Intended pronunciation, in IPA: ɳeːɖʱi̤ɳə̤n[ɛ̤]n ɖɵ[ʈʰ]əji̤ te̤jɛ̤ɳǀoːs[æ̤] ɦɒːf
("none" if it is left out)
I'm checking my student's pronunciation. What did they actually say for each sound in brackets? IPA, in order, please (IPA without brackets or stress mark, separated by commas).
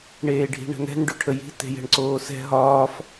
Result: ɛ̤, ʈʰ, ɛ̤